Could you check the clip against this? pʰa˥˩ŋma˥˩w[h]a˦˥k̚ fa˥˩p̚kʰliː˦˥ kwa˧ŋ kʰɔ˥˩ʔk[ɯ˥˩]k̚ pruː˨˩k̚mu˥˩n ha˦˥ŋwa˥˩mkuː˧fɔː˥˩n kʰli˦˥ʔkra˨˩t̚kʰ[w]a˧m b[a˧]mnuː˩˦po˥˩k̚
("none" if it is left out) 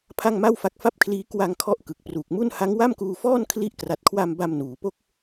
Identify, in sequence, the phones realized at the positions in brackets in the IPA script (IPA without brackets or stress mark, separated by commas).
f, ɯ˨˩, w, a˧